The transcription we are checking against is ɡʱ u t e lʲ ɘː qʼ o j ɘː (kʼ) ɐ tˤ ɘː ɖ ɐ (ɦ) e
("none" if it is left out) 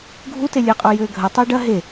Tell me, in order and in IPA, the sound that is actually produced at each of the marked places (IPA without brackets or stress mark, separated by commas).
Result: ɡʱ, ɦ